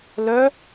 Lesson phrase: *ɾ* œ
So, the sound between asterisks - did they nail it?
no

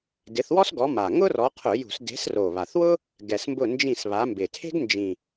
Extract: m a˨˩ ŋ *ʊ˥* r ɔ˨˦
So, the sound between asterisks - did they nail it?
yes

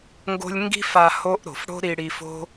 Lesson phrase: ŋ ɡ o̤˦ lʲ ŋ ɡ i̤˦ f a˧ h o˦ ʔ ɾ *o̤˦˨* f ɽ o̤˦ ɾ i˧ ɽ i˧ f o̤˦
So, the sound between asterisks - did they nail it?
no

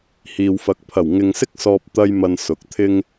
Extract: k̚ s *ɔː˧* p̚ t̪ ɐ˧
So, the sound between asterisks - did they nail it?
yes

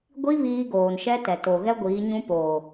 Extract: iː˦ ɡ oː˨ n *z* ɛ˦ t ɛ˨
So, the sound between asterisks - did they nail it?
no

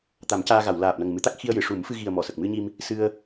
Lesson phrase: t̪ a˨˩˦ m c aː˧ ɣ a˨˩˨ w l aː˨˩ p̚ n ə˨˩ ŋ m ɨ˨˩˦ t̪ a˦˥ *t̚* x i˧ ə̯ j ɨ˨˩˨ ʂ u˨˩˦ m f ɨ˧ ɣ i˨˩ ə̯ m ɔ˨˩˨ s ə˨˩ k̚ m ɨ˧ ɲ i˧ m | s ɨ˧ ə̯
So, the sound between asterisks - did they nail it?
no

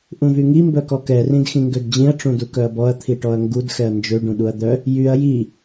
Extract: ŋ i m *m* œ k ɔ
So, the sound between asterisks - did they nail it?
no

